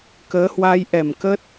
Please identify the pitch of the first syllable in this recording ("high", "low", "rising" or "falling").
rising